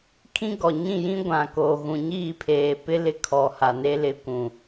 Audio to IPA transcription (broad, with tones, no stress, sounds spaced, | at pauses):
kʰ ĩ˦ ɡ ɔ˨ ɲ ĩ˦˨ j ĩ˦ ɡʷ ã˨ k oː˨ ɣ ũ˨ ɲ iː˦˨ pʰ eː˨ p ɪ˦ l ɪ˦ kʰ ɔ˨ h a˨ n e˦ l ɪ˨ kʷ ũ˨